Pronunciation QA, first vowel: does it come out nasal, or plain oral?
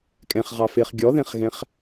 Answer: nasal